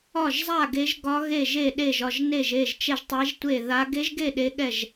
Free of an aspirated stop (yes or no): yes